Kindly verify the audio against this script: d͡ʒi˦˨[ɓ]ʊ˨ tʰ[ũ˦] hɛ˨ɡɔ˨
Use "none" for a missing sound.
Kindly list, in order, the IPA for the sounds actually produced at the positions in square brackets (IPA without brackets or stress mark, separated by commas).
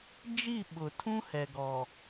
ɓ, ũ˦